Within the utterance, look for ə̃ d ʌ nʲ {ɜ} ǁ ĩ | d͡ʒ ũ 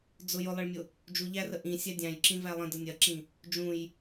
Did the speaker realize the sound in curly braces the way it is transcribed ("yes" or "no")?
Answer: yes